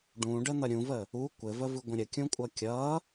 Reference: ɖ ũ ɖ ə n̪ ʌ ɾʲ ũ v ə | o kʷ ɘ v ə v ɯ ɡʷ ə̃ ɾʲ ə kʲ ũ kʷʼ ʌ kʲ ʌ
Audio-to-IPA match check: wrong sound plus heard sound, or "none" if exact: o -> u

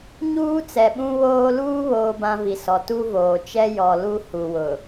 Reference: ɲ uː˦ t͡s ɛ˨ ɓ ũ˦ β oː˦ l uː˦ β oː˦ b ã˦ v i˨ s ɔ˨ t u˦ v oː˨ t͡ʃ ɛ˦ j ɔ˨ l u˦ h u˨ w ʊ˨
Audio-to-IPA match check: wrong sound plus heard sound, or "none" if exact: none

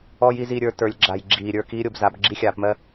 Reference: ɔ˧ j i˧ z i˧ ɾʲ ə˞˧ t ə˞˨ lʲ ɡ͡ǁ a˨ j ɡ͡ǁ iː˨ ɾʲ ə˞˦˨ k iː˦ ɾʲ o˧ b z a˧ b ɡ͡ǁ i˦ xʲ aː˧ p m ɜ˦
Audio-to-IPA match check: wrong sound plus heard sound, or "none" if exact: none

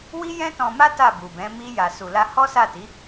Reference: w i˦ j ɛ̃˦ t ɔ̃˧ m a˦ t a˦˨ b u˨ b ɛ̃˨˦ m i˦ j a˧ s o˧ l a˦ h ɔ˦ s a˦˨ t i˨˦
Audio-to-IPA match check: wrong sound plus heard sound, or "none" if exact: o˧ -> u˧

